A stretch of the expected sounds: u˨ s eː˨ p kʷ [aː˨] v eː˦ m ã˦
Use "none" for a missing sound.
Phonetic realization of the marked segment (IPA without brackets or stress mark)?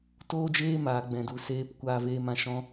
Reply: aː˧